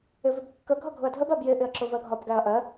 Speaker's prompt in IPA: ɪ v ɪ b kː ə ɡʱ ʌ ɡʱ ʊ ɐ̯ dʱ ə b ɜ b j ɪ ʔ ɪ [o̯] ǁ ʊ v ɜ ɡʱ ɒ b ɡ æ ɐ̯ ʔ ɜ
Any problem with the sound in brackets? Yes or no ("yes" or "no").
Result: yes